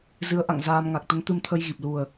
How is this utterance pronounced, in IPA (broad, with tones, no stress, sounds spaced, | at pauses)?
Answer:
z ɨ˨˦ ə̯ ʔ a̰˧˨ ŋ z aː˧ m ŋ a˨˩ k̚ t̪ ə˨˦ n t̪ ɨ˧ m t̪ʰ ə˧ j ɣ i˨˩ p̚ l u˨˩ ə̯